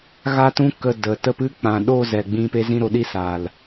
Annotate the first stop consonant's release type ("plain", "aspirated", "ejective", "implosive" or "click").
plain